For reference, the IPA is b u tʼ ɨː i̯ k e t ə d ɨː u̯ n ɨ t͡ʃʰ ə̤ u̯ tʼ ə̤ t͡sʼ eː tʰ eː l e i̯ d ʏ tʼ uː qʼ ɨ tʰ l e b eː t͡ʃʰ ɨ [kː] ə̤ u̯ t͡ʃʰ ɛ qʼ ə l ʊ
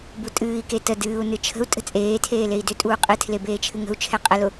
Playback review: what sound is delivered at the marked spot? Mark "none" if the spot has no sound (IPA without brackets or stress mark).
ŋ